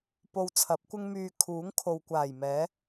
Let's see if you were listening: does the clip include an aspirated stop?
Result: yes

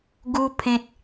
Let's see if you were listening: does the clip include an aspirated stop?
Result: yes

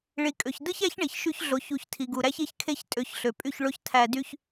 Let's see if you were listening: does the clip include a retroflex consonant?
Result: yes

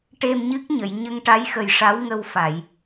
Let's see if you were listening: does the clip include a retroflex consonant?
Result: yes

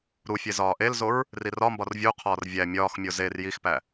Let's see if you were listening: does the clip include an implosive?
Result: no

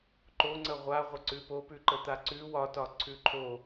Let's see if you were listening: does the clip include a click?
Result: yes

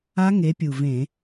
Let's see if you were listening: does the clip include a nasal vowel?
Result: yes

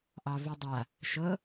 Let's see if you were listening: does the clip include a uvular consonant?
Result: no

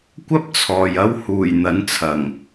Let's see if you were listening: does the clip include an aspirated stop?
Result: yes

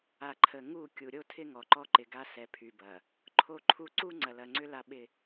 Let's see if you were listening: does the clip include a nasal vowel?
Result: no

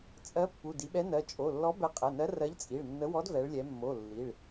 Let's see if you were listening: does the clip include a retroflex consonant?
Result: yes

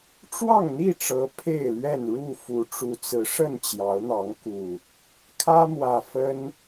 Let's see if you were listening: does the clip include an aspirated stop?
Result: yes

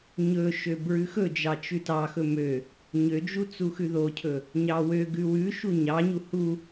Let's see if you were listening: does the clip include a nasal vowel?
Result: no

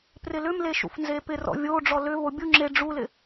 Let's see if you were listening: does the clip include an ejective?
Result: no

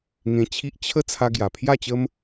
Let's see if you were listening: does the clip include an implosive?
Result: no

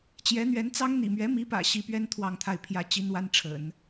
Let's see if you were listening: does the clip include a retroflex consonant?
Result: yes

